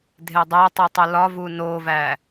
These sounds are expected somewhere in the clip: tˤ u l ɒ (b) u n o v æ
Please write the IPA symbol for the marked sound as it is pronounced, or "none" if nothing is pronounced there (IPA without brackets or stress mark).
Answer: v